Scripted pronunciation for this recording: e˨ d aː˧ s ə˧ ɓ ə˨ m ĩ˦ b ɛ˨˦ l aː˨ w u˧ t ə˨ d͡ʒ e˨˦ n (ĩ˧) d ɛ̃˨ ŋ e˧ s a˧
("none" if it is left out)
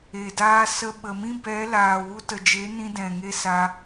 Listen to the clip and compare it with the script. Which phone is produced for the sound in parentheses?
ĩ˧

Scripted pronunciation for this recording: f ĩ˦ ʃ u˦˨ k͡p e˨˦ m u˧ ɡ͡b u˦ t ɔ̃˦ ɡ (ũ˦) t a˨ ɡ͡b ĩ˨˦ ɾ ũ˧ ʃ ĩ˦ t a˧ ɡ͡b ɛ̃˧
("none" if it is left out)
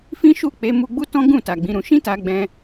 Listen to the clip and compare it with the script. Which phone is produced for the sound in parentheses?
ũ˦˨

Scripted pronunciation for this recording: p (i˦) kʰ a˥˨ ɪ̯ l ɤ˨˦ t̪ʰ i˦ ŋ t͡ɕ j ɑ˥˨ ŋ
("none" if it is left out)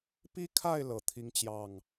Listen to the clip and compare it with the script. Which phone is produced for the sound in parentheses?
i˦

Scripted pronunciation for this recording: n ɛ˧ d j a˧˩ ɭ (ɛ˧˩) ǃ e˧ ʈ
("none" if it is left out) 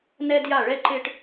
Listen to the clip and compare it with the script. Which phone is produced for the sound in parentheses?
ɛ˧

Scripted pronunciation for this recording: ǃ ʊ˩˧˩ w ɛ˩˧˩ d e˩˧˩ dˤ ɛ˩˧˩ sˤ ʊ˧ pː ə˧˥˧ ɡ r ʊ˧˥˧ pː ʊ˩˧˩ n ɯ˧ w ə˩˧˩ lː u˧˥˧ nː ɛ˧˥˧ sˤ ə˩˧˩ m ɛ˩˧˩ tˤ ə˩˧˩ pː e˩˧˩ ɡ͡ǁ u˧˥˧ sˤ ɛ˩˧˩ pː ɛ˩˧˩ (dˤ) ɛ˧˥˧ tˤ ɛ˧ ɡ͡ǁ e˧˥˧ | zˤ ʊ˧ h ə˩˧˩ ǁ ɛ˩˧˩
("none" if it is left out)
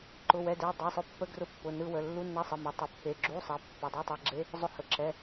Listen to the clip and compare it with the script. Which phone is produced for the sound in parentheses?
dˤ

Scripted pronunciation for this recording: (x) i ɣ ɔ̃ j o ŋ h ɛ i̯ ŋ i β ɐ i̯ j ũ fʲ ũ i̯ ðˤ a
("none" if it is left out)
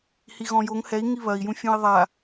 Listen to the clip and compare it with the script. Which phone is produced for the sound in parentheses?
h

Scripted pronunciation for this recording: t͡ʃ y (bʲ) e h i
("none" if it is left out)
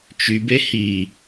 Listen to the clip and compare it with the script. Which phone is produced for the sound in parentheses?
b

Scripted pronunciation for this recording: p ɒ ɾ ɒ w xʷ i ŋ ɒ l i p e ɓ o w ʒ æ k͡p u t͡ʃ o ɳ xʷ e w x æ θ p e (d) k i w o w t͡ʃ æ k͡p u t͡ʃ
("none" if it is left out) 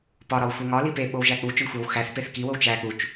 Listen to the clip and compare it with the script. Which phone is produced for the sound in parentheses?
θ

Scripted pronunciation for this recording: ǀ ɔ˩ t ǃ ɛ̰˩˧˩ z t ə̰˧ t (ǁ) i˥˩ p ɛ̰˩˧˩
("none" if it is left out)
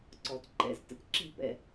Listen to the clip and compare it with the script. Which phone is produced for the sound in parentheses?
ǁ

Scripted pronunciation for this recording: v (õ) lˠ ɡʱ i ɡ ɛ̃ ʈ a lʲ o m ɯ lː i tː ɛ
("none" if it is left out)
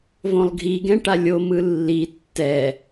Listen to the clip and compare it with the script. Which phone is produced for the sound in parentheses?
õ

